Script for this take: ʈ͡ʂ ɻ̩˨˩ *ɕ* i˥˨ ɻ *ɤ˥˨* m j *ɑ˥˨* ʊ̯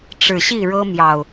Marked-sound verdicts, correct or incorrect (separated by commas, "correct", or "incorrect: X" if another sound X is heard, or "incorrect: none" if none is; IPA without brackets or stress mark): correct, incorrect: ɤ˦, incorrect: ɑ˨˩